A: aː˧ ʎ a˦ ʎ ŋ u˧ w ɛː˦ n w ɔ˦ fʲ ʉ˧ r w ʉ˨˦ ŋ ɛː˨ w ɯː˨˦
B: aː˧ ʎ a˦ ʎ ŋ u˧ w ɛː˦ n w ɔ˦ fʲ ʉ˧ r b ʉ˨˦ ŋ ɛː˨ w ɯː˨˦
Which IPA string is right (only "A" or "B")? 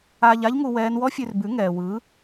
B